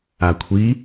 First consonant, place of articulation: velar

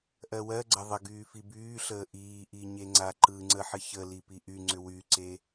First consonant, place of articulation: glottal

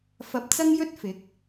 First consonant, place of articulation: labial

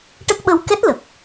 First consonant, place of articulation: retroflex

